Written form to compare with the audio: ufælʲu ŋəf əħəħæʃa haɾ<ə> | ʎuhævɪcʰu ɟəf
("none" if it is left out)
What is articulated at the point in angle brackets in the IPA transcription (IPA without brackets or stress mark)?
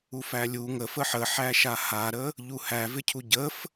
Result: ə